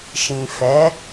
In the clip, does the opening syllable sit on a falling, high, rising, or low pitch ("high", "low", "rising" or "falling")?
low